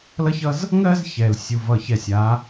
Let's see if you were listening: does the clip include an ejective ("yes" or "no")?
no